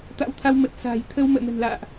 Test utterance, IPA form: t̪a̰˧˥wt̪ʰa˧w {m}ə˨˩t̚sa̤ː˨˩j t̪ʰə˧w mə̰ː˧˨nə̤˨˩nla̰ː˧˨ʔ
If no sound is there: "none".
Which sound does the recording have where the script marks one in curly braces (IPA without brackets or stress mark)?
m